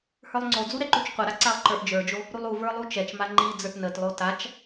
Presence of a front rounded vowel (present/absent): absent